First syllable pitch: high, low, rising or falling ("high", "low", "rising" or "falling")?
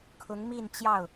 rising